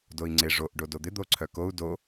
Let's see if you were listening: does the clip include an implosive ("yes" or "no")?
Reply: no